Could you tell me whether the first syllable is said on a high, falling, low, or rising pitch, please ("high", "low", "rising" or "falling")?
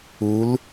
rising